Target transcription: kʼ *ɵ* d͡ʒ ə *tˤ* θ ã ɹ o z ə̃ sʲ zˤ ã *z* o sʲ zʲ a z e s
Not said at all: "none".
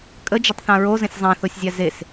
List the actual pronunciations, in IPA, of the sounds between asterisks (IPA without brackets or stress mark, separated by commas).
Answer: ə, tˤ, θ